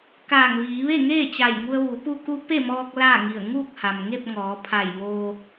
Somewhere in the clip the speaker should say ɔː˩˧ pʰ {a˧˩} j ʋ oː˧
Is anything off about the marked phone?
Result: no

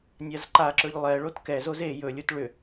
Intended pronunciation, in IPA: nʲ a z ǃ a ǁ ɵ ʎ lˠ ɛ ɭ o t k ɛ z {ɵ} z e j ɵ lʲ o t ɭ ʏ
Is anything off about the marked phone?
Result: yes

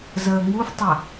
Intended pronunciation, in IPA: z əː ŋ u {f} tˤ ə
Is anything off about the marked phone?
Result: no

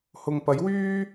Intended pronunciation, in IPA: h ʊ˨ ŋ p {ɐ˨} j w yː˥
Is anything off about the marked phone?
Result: yes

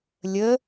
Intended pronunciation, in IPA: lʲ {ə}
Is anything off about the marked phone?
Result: no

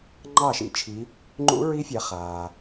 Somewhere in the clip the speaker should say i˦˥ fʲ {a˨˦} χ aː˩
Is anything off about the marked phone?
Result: no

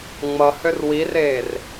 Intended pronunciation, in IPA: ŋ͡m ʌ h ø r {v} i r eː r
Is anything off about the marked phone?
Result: yes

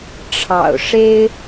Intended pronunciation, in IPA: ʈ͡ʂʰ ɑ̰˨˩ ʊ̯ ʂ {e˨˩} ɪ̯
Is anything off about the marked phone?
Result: yes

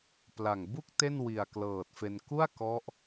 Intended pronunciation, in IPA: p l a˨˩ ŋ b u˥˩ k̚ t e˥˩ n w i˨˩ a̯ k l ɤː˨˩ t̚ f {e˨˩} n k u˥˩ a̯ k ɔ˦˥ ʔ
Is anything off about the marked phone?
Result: yes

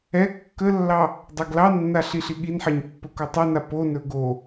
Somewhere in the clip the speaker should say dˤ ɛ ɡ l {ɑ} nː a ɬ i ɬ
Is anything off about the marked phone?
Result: no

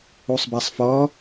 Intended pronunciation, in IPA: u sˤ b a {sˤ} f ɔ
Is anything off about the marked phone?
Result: no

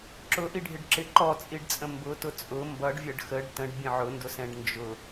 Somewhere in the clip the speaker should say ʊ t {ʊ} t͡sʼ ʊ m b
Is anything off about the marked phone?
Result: no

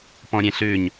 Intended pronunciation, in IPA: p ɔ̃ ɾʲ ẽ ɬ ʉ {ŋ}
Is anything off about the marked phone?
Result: yes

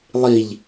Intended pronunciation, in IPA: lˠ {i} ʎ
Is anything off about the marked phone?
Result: no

